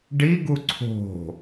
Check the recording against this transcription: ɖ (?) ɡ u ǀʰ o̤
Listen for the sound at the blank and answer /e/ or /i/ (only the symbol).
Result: i